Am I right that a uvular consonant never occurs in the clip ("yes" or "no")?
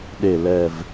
yes